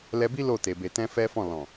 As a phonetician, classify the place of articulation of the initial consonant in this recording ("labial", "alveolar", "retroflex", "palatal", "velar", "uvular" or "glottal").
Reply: alveolar